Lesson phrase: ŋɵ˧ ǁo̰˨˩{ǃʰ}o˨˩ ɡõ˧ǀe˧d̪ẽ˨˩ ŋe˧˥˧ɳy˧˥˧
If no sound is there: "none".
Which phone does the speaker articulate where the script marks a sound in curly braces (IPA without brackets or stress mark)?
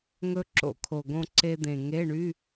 kʰ